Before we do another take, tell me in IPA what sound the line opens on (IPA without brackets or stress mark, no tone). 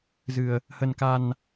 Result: z